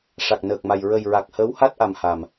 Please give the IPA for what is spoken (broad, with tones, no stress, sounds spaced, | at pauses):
ʂ a˨˩ k̚ n əː˨˩ k̚ m a˨˩ j ɹ ə˨˩ j ɹ a˨˩ k̚ h əː˧˥ w h a˦˥ t̚ ʔ a˨˩ m h a˨˩ m